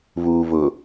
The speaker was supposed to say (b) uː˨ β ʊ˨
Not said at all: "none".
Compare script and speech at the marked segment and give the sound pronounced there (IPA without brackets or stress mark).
β